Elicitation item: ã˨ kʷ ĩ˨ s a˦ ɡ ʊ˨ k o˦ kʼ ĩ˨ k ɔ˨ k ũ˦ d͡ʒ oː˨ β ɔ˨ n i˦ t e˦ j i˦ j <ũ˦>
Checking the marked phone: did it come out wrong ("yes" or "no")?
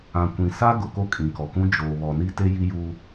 yes